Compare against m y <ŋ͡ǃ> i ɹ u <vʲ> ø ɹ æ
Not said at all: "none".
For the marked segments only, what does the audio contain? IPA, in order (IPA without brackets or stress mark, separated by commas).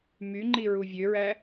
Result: ŋ͡ǃ, vʲ